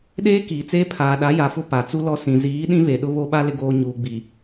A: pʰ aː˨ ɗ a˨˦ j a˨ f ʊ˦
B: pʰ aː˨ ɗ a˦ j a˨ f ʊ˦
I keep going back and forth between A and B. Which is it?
A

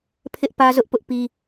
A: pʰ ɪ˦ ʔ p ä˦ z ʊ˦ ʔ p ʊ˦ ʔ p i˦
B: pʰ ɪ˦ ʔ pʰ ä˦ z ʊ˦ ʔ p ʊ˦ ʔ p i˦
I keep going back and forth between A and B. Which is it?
A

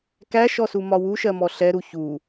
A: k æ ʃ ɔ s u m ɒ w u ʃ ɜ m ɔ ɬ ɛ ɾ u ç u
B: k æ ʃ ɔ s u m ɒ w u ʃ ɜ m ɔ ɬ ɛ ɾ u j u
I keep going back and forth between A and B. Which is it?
A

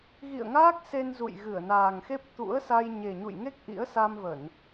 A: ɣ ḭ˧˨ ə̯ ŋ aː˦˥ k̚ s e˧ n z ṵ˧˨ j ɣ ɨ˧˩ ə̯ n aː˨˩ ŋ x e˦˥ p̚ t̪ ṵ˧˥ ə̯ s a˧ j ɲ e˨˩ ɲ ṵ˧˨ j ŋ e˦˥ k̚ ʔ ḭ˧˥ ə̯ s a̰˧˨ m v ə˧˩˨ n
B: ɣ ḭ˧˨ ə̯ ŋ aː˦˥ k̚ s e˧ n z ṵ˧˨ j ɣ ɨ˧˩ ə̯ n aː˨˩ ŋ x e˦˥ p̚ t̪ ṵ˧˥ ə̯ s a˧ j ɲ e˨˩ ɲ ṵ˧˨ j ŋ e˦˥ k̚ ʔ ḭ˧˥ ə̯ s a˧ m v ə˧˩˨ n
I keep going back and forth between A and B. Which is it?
B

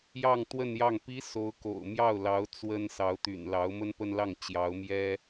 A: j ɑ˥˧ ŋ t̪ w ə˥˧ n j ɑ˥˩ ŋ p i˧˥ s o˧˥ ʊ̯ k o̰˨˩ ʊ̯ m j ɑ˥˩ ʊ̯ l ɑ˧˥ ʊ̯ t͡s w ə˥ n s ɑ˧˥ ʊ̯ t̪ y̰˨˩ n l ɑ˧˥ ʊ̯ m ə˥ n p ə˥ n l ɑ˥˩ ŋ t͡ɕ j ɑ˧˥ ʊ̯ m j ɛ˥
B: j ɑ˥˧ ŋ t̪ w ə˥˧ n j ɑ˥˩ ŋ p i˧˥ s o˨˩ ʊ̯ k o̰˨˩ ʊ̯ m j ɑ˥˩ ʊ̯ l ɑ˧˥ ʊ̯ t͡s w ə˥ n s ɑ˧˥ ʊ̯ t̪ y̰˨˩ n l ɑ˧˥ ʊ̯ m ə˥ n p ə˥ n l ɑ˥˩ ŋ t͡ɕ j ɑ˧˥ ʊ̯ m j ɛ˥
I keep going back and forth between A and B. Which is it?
A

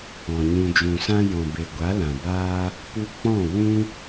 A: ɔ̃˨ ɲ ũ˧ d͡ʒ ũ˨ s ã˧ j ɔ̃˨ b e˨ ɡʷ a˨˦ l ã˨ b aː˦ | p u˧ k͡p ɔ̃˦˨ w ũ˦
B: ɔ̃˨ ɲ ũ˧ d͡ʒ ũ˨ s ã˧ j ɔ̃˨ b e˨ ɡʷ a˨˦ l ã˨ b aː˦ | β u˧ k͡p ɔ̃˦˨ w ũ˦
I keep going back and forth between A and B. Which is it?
A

